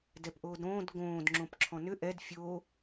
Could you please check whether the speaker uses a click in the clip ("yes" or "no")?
yes